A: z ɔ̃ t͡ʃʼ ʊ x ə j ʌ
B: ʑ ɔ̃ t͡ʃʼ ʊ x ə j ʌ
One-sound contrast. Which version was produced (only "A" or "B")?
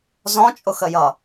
A